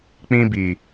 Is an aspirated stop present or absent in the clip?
absent